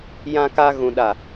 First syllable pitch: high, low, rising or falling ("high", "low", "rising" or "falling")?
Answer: high